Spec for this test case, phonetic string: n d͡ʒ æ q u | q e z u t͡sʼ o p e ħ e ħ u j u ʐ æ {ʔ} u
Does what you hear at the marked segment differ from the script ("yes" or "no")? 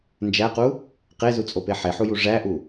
no